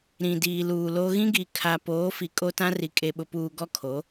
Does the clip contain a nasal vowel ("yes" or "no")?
yes